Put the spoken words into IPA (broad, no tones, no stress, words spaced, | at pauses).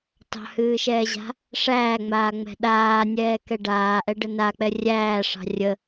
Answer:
tɑ̤hɨːʃɛːʑa̤ | ʂæːŋ͡maːŋ͡mɛ̤ ɗaːnʲɛːkɛ ɖaːʔɛɖə nak͡pɛ rʲæːʂɑ̤ rʲə